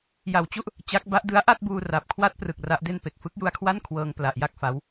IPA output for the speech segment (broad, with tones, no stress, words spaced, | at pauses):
ja˨˩wt͡ɕu˥˩ʔ | t͡ɕa˦˥k̚ ba˦˥ʔdɯ˦˥a̯ ʔa˥˩t̚buː˧ra˨˩p̚kʰwa˦˥t̚ prɯ˨˩k̚ ra˦˥ʔde˥˩n pe˨˩k̚fɯ˦˥k̚ju˧a̯kʰwa˥˩n kʰwɤː˧ŋ pla˨˩ʔja˥˩k̚fa˦˥w